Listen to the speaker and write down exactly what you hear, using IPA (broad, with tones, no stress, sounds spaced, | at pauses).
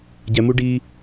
ɟ ɛ˨ m u˧ ɖ iː˧